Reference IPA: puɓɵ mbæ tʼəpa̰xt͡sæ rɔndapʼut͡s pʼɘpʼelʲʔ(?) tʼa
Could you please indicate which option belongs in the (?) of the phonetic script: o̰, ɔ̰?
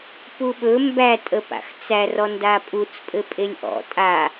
ɔ̰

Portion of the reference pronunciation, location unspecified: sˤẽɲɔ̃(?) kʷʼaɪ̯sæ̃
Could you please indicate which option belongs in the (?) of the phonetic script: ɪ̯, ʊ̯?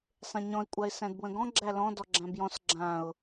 ɪ̯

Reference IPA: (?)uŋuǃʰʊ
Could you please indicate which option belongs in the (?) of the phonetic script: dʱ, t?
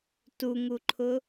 t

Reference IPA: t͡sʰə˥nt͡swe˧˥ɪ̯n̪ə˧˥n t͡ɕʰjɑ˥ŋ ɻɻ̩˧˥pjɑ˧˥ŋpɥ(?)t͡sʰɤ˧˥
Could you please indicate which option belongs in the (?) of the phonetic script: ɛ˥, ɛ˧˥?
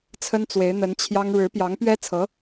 ɛ˥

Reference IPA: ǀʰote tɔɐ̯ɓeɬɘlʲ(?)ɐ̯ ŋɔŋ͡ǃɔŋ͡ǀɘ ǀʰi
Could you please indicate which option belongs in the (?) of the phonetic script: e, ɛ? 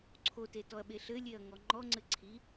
e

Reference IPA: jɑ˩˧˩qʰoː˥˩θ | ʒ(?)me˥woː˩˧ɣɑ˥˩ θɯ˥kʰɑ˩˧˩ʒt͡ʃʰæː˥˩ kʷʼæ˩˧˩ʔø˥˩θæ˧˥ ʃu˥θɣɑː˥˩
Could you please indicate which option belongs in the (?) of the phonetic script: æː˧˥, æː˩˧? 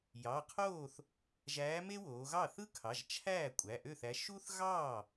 æː˧˥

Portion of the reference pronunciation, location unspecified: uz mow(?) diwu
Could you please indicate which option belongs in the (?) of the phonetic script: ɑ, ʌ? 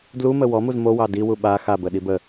ɑ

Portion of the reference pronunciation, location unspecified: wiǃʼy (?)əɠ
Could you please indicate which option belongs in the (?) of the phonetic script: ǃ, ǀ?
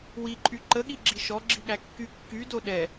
ǃ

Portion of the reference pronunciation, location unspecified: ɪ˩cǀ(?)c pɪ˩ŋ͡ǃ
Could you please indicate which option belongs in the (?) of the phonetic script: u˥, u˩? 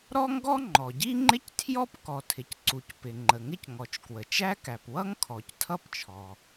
u˩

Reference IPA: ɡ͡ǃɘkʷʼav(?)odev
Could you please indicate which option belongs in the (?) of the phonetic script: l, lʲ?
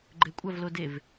l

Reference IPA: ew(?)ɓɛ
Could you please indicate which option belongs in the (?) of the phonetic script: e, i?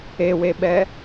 e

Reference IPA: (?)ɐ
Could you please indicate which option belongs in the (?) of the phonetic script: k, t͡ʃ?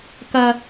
k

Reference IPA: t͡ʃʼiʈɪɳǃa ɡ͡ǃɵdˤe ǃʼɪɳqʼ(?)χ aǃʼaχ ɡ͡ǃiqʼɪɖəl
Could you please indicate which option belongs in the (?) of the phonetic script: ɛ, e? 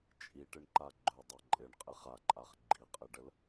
e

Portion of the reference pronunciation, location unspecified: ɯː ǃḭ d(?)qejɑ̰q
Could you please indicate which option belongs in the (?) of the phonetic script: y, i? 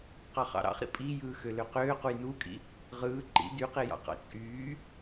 y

